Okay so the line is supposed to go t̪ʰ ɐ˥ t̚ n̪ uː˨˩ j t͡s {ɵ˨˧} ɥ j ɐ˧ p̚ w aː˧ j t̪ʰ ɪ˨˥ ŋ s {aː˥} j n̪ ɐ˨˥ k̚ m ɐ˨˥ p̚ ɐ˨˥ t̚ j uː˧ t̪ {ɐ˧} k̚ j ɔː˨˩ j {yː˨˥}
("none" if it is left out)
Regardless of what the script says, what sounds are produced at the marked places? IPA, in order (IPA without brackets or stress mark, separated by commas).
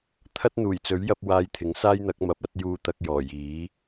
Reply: ɵ˨˥, aː˥, ɐ˧, iː˨˥